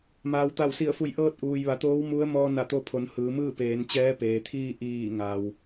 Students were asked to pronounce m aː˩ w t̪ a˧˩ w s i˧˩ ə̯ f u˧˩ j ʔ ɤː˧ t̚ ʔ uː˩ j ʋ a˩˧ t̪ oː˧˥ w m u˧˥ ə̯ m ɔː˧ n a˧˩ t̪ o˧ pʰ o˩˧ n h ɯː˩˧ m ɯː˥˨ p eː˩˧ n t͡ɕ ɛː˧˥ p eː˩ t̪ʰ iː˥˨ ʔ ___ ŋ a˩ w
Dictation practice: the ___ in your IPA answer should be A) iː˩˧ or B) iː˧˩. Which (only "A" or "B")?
B